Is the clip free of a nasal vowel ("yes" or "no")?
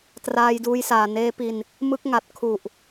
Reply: yes